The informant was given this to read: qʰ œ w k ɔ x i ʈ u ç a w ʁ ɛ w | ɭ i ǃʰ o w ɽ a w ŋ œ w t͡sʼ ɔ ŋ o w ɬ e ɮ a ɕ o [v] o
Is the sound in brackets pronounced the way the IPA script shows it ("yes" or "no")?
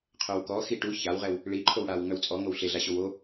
no